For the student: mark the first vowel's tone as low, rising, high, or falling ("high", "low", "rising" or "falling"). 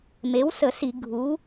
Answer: rising